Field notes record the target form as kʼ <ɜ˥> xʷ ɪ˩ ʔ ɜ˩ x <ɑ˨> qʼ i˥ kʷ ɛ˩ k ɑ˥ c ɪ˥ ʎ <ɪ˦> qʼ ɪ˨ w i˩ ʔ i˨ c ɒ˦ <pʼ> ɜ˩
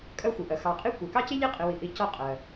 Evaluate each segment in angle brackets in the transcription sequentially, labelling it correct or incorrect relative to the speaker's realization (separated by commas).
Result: incorrect, correct, incorrect, incorrect